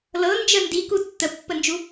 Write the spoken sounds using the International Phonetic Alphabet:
l ɤ n d͡ʒ ə n d i k u tː ə pː ə n d͡ʒ u

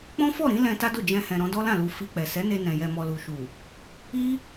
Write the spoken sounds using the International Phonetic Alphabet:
k͡p ɔ̃˦ f ɔ˦˨ ɾ ĩ˨˦ l ɛ̃˧ t a˦ d o˦˨ d͡ʒ ɛ̃˧ h ɛ̃˨ ɾ ɔ̃˨˦ d ɔ˦ l ã˦˨ l u˧ f i˧ k͡p ɛ˨ s ɛ˨˦ n e˧ n ɛ̃˨ j ɛ˨ m ɔ˨ l u˨ ʃ u˨ | i˦

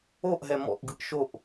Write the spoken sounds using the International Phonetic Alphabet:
o ʔ ɦ ɛ m ɔ̰ ʔ ɡ ɯ ʔ ʃ o ʔ

